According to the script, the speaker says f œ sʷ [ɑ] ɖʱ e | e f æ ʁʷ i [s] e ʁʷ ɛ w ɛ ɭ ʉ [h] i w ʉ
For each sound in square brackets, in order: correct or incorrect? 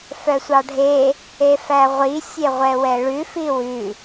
correct, incorrect, incorrect

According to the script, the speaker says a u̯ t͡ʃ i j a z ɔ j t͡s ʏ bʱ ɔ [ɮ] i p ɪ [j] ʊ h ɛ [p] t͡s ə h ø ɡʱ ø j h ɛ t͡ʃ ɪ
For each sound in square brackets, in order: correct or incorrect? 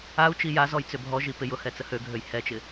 incorrect, correct, incorrect

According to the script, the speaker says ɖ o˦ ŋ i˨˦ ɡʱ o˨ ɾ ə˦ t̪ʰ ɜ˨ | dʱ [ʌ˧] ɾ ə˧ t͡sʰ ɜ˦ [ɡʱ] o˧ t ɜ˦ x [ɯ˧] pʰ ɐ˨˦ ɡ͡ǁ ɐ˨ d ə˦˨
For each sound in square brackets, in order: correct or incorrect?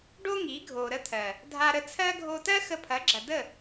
incorrect, correct, incorrect

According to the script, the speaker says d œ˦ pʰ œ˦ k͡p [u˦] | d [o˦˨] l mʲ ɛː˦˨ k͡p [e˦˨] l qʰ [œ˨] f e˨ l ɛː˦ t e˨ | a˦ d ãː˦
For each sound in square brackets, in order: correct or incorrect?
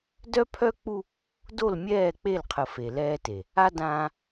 correct, correct, correct, incorrect

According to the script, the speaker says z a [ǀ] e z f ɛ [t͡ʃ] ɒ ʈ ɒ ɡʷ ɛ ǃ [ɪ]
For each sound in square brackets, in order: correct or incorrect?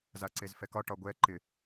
correct, incorrect, correct

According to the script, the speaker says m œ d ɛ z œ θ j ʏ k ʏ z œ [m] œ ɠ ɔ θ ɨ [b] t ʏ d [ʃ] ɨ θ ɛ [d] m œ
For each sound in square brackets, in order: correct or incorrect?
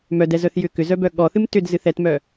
incorrect, incorrect, incorrect, incorrect

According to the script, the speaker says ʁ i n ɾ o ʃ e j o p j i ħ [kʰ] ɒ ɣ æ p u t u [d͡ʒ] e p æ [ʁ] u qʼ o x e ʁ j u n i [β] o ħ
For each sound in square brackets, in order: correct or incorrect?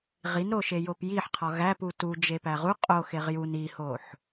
incorrect, correct, correct, incorrect

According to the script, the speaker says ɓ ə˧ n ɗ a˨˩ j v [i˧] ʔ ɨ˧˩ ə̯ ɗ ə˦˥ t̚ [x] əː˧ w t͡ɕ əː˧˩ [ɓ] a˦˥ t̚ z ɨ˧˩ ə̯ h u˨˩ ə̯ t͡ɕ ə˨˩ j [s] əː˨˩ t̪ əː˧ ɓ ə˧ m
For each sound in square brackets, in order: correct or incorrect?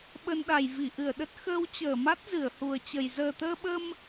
incorrect, correct, incorrect, incorrect

